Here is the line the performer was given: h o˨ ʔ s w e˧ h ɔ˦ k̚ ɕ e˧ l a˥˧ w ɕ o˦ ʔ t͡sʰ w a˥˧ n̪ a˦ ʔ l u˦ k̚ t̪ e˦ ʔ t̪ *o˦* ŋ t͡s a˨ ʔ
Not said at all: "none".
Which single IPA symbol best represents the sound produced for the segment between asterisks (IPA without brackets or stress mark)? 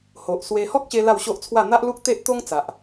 o˦